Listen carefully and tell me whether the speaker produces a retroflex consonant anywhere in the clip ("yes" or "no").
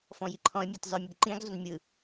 no